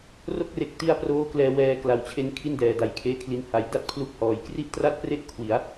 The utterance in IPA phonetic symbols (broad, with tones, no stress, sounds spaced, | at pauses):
r o˥˩ k̚ r e˨˩ k̚ t i˦˥ a̯ p r oː˦˥ k l ɛː˧ w ɛː˧ k l a˨˩ w t͡ɕʰ e˧ n kʰ i˥˩ n d ɛː˨˩ d a˨˩ j kʰ eː˦˥ kʰ l i˧ n h a˨˩ j d a˥˩ t̚ pʰ l u˦˥ k̚ h ɔː˨˩ j k r i˥˩ ʔ t r a˥˩ t̚ p r e˥˩ ʔ kʰ w i˩˦ a̯